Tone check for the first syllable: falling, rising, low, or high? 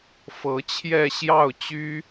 rising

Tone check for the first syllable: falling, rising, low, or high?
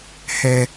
high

